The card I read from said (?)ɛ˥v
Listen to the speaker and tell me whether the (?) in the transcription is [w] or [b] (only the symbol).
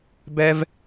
b